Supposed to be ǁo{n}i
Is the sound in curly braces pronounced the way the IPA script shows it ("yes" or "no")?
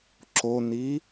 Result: yes